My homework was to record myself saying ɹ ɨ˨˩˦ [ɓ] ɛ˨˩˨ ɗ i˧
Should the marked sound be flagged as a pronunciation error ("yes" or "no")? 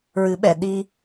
no